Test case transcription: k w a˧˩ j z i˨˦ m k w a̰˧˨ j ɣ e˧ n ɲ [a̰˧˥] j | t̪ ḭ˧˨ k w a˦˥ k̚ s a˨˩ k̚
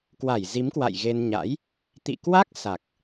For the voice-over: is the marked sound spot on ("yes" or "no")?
yes